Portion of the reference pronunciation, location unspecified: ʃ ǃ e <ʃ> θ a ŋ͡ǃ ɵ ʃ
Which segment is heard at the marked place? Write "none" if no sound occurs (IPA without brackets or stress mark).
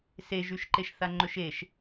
ʃ